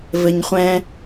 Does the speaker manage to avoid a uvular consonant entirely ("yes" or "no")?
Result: no